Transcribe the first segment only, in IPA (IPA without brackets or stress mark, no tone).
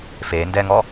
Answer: f